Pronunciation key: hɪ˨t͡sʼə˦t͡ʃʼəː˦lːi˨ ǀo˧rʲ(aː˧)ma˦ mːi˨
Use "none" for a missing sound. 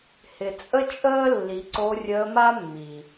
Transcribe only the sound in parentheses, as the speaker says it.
əː˧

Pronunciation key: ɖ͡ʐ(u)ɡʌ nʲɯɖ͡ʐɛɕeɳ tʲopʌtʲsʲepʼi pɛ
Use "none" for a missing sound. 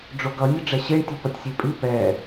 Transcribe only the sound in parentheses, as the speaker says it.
o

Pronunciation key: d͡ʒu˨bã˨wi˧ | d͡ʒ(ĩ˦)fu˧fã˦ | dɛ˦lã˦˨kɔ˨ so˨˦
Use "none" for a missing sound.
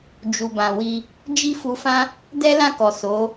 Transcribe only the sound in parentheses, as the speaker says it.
i˦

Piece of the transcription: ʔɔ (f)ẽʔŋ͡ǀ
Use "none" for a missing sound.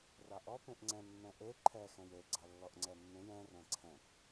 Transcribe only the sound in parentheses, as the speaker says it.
p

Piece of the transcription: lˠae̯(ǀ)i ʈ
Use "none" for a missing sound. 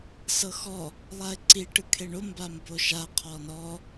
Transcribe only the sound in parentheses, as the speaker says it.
ǀ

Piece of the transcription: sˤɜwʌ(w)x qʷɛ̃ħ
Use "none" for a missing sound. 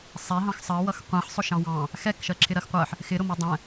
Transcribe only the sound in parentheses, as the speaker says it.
none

